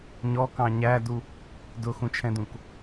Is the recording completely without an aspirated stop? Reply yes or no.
no